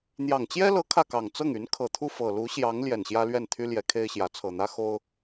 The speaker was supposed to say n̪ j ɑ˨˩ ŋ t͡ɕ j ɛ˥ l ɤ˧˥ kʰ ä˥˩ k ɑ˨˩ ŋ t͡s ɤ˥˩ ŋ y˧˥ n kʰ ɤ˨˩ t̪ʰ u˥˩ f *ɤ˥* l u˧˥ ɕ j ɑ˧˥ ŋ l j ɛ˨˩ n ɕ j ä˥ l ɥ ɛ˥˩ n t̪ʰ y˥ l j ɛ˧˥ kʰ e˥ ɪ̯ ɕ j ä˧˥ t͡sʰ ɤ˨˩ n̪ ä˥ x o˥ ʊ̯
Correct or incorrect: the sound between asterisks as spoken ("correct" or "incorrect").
incorrect